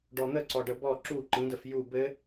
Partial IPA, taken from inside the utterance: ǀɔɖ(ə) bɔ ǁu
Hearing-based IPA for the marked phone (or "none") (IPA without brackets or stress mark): ə